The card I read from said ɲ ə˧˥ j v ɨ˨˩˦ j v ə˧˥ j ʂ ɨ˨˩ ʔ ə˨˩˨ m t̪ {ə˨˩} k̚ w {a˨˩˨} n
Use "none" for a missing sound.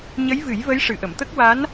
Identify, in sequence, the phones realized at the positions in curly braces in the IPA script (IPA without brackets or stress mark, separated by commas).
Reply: ə˦˥, a˧˥